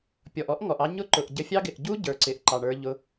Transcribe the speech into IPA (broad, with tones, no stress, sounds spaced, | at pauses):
pʲ ɔ˨ ʔ ɔ˦ ʔ ŋ ɔ˨ ʔ ɑ˧ ɲ ʊ˦ ǃ ʊ˨ ʔ ɟ ə˧ fʲ ɑ˦ ɡ ɪ˨ ʔ ɟ u˦ ɟ ə˞˨ ǀ ɪ˨ ʔ ǃ ɑ˨ ɳ ə˞˧ ʎ ʊ˧